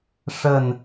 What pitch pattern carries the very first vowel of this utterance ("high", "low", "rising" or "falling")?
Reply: falling